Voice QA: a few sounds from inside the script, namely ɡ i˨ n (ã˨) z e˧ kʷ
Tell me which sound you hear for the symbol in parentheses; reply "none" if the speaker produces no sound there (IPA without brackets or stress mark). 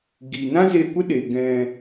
ã˦